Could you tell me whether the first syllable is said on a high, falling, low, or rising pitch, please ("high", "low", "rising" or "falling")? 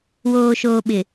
low